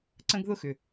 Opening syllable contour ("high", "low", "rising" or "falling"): high